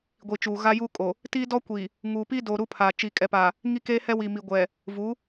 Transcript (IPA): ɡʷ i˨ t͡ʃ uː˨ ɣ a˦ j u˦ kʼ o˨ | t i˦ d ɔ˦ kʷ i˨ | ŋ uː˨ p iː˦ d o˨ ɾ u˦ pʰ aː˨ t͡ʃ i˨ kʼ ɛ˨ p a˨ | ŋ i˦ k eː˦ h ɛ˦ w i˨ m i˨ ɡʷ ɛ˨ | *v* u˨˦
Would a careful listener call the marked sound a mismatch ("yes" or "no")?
no